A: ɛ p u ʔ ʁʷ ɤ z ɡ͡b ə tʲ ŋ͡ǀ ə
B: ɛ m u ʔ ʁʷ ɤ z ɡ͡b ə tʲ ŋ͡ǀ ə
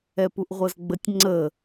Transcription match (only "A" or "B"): A